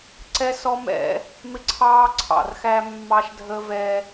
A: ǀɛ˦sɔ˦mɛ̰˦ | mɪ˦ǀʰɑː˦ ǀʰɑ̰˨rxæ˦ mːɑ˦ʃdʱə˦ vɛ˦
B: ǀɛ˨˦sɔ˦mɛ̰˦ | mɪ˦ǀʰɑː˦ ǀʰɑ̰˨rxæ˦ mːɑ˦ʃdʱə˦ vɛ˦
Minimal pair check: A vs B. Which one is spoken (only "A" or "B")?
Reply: A